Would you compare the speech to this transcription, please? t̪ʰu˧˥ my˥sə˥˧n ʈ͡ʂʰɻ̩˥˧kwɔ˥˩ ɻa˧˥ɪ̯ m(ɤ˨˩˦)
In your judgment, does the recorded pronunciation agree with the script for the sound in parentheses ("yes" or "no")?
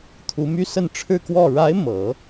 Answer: yes